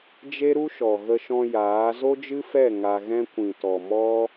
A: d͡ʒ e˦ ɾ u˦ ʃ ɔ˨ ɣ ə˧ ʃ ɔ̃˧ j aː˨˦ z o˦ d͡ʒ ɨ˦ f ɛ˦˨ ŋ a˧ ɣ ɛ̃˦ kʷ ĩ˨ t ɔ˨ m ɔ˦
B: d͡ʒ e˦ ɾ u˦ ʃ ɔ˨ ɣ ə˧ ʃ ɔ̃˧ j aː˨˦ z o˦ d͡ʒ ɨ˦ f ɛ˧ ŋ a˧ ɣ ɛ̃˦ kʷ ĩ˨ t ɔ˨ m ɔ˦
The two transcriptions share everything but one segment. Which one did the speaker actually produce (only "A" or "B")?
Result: A